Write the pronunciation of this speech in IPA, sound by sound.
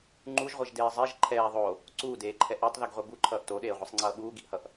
ŋ͡ǃ u ʒ ʁʷ ɛ ʒ d eː zˤ e ʒ ǃʰ ɛː ðˤ o | ǀ uː d eː ǃʰ ɛ ʔ o tˤ ð i ɡ ʁʷ ɛ b u ǃʰ ʌː ʔ t o ɗ eː ʁʷ i sˤ ŋ͡ǀ ʌː ɓ uː ɡ i ʔ h ʌ ʔ

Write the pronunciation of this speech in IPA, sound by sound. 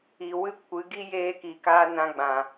i˨ w ɨ˦˨ kʷ ɨ˨˦ ɡ i˦ j eː˧ k i˨ k aː˧ n ã˧ ɡ͡b ã˨

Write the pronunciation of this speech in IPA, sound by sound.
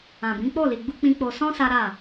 ã˨ b ĩ˨˦ k͡p o˦˨ l i˨ ɡ͡b u˧ k͡p ĩ˨ k͡p o˨ s ɔ̃˧ s a˦ ɾ a˦˨

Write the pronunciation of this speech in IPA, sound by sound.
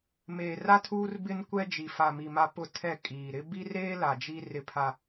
m eː˨ r a˦ tʰ uː˦ r b ɪ˦ n kʷ ɛ˦ d͡ʒ i˨ f a˨ m i˨ m a˦ p ʊ˦ tʰ ɛ˦˨ kʼ iː˨ ɾ ɪ˦ b i˦ r eː˦ l a˨ d͡ʒ i˦ r ɪ˦ pʰ a˦

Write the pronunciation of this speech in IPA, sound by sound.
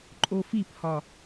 ǃʼ o f i p h ɒ

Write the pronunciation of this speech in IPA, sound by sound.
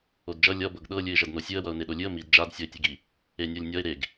o d d͡ʒ ʌ lʲ ʌ b ɤ ɡ ɗ ɤ lʲ ɨ ɪ̯ ʒ ʌ d n o sʲ ɨ ə̯ w ʌ ʊ̯ n e ɗ o lʲ ɨ ə̯ m i d d͡ʒ a d sʲ ʌ ɪ̯ tʲ ɨ ɡ i | e nʲ ɤ lʲ nʲ ʌ ɪ̯ ɾ e ɡ

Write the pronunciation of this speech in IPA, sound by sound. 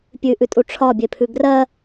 pʲ ʉ ʔ ʉ tʼ u ʈ͡ʂʰ ɒ bʲ e pʰ ʉ ɡ r ɜ

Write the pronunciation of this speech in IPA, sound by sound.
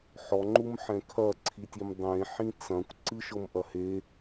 ħ ɔ ŋ͡ǃ u m ħ ɛ̃ kʰ ɐ ǀʰ i tʲ i m dˤ ẽ ħ ĩ t͡s ɐ̃ kʷ ǀ ɨ ʃ ɤ m ʔ ɐ h e

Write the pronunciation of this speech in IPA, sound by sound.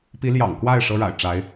p i˧˥ l j ɑ̰˨˩ ŋ k w a˥˩ ɪ̯ ʂ ɤ˥ ɻ a̰˨˩ ɪ̯ ʈ͡ʂ a˧˥ ɪ̯

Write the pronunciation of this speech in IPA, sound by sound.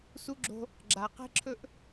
s u˦ ɡ͡ǁ o̤˦ | ɡ͡ǁ a˨ q e̤˦ ǁʰ ɵ˦ ʔ

